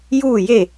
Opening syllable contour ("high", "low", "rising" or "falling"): falling